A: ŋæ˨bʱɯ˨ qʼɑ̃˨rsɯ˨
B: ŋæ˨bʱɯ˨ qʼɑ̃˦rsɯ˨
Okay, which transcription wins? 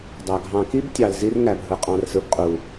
A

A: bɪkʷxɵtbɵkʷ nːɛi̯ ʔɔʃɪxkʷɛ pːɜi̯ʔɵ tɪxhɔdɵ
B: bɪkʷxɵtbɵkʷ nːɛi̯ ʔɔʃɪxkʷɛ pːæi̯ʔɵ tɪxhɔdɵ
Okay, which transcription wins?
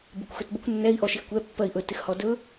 A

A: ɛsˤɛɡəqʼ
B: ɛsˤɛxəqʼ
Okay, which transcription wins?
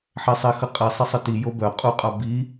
B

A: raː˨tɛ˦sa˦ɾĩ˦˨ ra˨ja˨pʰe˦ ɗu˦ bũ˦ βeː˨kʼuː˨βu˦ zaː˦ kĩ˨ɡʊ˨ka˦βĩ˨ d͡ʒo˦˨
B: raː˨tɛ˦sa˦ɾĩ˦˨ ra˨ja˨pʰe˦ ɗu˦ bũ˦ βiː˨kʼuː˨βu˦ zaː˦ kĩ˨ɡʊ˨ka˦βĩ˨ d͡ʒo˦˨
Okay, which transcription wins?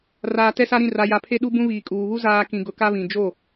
B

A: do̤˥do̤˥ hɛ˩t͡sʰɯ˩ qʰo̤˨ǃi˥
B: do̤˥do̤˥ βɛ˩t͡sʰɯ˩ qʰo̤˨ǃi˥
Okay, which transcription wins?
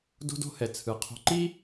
A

